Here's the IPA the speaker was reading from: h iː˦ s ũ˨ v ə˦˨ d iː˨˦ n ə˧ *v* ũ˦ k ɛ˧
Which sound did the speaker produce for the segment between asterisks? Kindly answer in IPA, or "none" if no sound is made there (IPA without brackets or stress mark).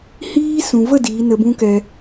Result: b